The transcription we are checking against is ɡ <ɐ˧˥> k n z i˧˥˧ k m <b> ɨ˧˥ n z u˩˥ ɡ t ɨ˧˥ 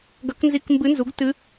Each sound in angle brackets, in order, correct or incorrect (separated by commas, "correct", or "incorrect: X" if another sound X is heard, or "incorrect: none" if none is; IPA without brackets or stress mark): correct, correct